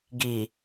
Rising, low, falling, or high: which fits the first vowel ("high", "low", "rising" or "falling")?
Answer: low